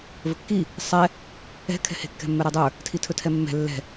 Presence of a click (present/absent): absent